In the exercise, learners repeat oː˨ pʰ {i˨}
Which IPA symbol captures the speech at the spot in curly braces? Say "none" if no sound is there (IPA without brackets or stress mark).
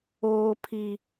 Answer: i˨